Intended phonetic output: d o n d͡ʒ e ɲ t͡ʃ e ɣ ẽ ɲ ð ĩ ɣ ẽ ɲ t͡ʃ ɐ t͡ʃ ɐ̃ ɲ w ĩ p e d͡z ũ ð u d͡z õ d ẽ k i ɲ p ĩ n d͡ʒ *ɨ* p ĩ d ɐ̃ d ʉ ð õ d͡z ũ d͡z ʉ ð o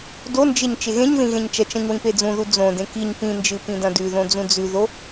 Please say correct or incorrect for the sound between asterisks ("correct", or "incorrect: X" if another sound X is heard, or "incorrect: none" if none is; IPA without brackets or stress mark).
correct